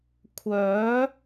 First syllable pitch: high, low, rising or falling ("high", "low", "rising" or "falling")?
rising